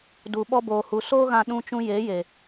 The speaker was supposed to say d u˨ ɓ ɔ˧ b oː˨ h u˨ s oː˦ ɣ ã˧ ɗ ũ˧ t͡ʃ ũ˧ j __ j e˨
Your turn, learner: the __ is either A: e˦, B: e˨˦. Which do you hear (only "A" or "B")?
B